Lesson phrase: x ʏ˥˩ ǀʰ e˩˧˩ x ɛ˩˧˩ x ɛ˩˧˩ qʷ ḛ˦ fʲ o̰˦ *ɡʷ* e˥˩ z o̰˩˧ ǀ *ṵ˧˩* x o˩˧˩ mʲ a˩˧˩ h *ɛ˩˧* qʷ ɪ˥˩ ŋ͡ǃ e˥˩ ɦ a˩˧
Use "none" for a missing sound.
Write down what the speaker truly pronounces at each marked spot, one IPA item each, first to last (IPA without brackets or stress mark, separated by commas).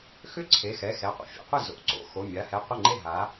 qʷ, o̰˧˩, ɛ˧˩